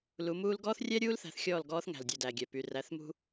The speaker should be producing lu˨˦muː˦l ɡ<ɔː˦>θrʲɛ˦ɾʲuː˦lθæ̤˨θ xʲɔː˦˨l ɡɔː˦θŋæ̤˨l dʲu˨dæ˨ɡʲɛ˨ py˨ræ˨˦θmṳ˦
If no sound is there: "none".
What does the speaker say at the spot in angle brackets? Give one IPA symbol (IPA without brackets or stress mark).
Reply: ɔː˦